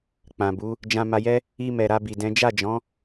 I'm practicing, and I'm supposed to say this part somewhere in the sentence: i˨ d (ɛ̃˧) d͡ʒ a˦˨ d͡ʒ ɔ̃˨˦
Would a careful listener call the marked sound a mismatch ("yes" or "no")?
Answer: yes